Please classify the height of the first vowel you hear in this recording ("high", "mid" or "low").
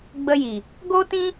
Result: mid